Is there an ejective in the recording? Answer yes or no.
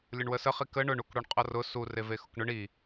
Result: yes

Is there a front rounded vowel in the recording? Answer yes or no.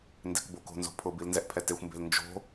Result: no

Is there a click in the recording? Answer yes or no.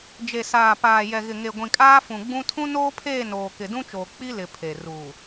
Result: no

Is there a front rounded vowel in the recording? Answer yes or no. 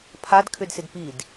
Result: yes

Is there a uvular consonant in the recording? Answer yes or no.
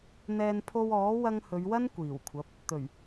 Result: no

